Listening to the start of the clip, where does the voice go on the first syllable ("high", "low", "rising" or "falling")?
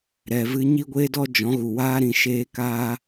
low